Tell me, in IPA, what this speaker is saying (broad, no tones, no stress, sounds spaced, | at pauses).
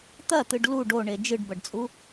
t̪ ɐ t̪ ɨ ɖ l u ɖ o ɳ e d͡ʒ ɨ ɖ b ɐ ɖ t͡sʼ u